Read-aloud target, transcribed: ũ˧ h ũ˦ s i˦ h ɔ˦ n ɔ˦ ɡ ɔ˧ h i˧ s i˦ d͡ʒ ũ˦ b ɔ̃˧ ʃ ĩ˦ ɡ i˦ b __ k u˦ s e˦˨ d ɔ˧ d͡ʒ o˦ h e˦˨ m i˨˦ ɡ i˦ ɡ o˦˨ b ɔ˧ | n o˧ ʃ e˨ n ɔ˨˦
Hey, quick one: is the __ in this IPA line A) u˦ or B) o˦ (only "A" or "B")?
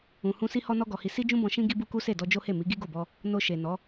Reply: A